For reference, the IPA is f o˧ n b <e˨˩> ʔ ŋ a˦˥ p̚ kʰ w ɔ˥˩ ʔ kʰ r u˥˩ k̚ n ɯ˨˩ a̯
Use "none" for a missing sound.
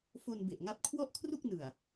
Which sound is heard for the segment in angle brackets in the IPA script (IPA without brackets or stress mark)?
e˨˩